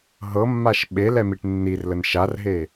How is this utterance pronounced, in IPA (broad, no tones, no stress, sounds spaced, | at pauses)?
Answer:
ɦ ɤ mː a ʃ ɓ e l ɛ m i ʈ nː i r l ə n ʃ a r ɦ e